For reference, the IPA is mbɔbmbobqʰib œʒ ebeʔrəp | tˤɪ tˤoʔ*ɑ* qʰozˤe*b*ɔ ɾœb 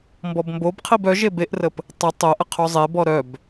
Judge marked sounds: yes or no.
no, yes

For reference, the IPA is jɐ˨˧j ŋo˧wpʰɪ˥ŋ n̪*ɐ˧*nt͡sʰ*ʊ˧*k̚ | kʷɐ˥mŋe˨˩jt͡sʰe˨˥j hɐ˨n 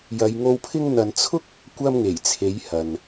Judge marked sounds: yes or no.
no, no

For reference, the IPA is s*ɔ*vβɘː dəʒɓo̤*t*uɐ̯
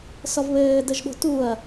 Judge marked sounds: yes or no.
yes, yes

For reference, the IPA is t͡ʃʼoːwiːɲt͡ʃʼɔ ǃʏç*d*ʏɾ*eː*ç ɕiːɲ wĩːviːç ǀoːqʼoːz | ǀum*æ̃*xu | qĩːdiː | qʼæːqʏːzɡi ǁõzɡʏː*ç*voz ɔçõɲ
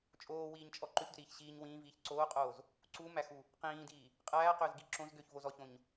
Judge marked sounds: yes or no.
yes, no, no, yes

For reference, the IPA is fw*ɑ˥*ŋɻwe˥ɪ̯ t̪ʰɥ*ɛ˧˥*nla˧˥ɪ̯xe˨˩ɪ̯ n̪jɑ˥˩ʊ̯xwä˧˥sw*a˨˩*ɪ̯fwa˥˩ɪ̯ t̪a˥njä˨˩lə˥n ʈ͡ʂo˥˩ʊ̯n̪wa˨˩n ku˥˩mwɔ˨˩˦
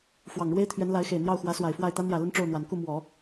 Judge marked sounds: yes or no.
no, yes, yes

